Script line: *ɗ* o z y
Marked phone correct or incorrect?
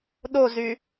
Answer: correct